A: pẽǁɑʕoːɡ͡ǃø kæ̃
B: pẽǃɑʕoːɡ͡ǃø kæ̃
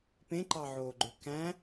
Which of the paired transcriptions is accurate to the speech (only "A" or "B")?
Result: B